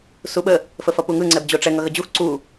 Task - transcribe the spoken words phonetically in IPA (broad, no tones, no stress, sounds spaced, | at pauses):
s u ɓ ə | f ə f ʌ p u ŋ ɯ ŋ͡ǀ ɛ b d͡ʑ o ʈ͡ʂ ɛ ŋ ʌ ɣ ə d͡ʑ u x ǀ u